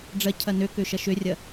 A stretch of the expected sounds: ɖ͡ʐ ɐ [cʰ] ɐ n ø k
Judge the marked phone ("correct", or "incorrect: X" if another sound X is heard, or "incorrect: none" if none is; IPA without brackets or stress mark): correct